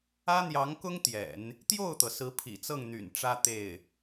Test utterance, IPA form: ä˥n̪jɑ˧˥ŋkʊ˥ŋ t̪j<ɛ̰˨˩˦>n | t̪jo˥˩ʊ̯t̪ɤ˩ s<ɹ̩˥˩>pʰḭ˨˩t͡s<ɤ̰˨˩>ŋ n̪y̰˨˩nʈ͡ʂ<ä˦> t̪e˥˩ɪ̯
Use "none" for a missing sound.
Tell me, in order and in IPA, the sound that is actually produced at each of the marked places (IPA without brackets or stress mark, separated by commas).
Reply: ɛ̰˨˩˦, ɹ̩˧˥, ɤ˥˩, ä˥